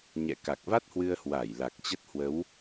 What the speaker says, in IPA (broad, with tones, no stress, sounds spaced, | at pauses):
ɲ ɛ̰˧˨ k a˨˩ k̚ v a˦˥ t̚ h w ɨ˧ ə̯ h w a˧˩ j l a˨˩ k̚ t͡ɕ ə˦˥ t̚ h w ə˨˦ w